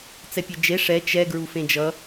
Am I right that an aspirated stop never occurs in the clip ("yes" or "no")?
yes